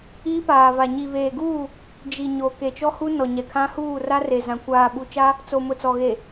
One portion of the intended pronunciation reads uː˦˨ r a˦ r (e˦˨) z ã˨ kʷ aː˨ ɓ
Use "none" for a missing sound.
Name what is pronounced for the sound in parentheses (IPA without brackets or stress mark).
e˨